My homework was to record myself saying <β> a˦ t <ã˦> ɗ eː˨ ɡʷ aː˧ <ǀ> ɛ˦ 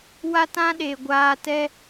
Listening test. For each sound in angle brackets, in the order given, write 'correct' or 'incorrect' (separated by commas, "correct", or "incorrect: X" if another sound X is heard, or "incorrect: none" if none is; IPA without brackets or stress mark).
incorrect: w, correct, incorrect: t